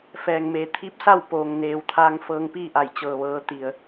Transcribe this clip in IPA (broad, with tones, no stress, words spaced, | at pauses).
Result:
fɛː˩ŋmeː˩ t̪ʰi˧˥p̚sa˥˨wpoː˩ŋ neː˩wt̪ʰaː˧ŋ fɤː˧ŋpiː˥˨ʔa˧˩j t͡ɕɤː˩ʋɤː˩˧ t̪i˩ə̯